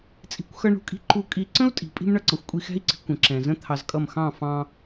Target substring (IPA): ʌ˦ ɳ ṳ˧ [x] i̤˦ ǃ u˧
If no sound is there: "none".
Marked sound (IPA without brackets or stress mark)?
kʼ